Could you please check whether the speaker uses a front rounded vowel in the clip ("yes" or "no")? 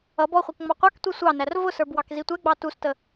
no